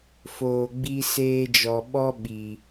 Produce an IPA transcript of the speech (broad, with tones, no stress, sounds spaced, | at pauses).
f oː˨ ɡ͡b i˧ s eː˧ d͡ʒ ɔ˨ ɓ ɔ˦ ɓ i˨